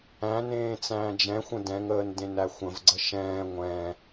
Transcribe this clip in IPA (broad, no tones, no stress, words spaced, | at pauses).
æ̃ nẽːt͡sæ̃ːd͡ʒɛ̃xʷə̃ dɛ̃ŋəːn dẽnæxʷə̃vɡ͡ǀə ʃɛ̃ː ŋʷɛ̃